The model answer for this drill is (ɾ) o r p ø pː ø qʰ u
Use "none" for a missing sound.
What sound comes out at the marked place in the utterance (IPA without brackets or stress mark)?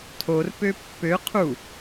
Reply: tʰ